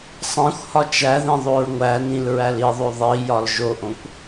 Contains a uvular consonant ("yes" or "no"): no